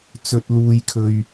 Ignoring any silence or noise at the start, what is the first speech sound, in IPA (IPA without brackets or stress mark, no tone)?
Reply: t͡s